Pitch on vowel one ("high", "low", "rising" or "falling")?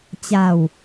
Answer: falling